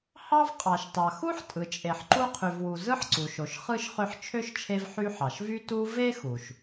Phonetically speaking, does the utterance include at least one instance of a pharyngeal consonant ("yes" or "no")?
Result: yes